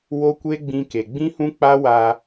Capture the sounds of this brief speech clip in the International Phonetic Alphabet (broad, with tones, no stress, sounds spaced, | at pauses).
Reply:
w o˦ kʷ e˦ ɡ͡b ĩ˧ k e˨ ɡ͡b ĩ˦ h ũ˦ k͡p a˦ w a˧